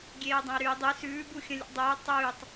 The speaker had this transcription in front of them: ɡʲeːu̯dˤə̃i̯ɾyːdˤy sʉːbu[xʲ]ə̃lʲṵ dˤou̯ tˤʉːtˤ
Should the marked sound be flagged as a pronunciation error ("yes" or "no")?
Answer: no